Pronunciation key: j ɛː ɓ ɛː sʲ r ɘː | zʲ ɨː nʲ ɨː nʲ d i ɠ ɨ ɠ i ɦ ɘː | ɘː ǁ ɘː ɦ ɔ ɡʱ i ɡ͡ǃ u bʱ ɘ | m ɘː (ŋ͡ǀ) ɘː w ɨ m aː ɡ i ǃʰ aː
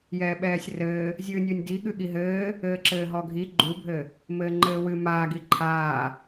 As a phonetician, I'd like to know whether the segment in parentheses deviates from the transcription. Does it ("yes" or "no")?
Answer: yes